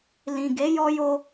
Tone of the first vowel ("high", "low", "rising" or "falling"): low